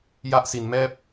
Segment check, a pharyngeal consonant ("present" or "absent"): absent